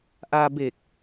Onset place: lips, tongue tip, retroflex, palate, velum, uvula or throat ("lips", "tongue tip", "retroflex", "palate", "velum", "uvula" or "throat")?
throat